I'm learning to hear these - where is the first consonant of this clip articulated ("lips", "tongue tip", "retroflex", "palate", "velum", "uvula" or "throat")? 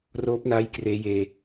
tongue tip